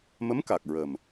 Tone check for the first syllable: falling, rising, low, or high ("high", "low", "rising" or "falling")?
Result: rising